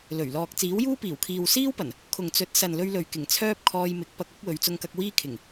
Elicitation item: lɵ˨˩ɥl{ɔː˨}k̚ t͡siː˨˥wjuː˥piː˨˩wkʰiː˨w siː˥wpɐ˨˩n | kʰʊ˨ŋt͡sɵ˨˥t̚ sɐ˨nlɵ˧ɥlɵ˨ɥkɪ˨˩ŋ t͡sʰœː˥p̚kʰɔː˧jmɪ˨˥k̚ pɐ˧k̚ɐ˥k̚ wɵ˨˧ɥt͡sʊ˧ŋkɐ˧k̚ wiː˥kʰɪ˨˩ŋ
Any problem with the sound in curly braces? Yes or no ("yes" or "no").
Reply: no